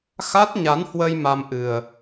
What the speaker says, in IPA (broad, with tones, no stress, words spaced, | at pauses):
xa˦˥t̚ɲa˨˦nhwə˧j ma˧mʔɨ˨˩ə̯